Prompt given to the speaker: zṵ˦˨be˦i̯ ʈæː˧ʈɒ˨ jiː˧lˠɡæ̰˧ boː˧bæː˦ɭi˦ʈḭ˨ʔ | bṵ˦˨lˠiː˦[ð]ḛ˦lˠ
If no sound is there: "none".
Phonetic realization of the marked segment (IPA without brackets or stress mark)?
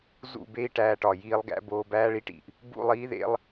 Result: ð